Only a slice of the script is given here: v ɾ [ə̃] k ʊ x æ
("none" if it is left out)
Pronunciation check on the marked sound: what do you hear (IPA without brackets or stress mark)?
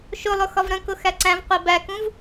ə̃